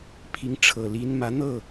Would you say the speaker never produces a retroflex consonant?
no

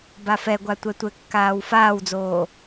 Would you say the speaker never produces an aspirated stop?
yes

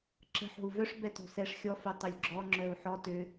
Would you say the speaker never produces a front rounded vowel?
no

